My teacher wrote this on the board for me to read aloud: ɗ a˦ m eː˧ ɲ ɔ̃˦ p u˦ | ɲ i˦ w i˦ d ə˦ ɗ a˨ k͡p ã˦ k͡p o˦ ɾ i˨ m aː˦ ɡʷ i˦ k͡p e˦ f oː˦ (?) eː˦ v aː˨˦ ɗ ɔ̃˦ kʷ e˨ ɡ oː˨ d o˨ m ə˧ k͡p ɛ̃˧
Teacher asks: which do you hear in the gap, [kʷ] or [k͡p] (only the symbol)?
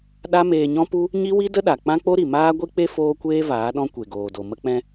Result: kʷ